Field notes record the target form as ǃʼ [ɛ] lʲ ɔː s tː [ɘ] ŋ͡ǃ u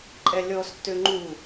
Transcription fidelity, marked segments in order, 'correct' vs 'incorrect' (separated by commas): correct, incorrect